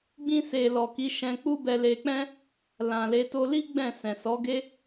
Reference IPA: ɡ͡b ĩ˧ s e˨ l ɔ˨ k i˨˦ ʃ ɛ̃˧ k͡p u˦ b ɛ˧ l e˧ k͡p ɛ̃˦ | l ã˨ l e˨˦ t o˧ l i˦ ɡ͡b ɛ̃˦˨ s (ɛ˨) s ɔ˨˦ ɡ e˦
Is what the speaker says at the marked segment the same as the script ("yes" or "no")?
no